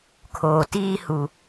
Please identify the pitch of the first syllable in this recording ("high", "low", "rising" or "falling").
low